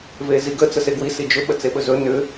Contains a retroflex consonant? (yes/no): no